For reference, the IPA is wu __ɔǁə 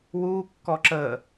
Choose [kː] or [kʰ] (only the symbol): kː